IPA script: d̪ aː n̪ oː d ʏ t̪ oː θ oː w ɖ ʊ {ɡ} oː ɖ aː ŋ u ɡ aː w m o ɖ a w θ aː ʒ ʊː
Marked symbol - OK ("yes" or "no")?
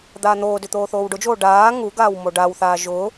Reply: no